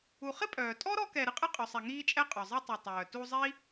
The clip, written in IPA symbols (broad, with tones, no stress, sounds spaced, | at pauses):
u˨ χ ɪ˥ pʼ œː˩ tʼ ɔ˥ ɾ ɔ˦ k ɛ˨ ɾ ɨ˥ qʼ ɨ˦ qʼ œ˨ sˤ ɛ˨ ŋ iː˥ t͡ʃʼ ɛ˥ qʼ œ˩ zˤ ɨ˦ tˤ ɛ˨ tˤ œː˩ t u˦ zˤ i˥